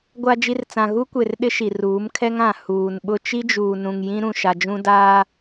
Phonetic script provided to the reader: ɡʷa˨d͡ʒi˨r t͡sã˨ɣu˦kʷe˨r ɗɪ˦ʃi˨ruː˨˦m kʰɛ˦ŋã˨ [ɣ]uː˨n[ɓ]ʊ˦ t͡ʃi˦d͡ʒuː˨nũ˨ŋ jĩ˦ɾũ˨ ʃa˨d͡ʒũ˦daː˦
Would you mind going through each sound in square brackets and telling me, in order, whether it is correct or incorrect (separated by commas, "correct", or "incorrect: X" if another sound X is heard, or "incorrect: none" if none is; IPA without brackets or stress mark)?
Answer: incorrect: h, correct